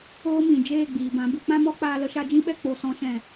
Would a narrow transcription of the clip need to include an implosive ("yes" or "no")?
yes